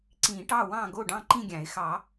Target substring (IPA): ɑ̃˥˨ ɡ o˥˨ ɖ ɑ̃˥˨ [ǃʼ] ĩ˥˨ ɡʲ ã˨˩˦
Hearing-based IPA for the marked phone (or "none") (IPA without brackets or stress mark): ǃ